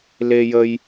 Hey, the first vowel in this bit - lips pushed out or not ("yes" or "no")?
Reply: no